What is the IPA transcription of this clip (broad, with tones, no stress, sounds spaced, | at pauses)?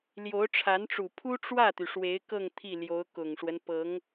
l j o˧˥ ʊ̯ ʈ͡ʂʰ a˧˥ n ʈ͡ʂ u˨˩ pʰ u˥ ʈ͡ʂ w ä˥˩ t̪ y˩ ʂ w e˧˥ ɪ̯ k ɤ˥˧ ŋ t̪ʰ i˥˩ l j o˧˥ ʊ̯ k ʊ˨˩ ŋ ʂ w ə˦ n p ɤ˧˥ ŋ